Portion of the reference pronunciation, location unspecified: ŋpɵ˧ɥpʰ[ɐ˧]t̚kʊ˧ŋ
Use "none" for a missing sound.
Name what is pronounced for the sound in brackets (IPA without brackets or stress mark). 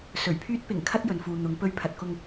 ɐ˨